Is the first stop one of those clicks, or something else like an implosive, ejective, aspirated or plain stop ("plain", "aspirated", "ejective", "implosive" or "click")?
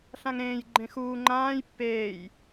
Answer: click